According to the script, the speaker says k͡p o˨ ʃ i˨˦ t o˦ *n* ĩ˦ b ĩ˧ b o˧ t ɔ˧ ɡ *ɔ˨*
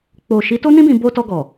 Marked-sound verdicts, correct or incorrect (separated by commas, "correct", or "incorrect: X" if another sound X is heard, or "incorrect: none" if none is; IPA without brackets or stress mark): correct, correct